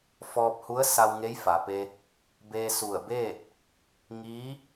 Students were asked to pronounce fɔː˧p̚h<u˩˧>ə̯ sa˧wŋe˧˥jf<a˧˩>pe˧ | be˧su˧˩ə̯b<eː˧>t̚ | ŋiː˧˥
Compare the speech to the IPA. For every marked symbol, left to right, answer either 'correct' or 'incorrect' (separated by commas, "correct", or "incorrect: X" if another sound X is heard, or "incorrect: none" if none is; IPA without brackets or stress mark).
incorrect: u˧˥, incorrect: a˩, incorrect: eː˥˨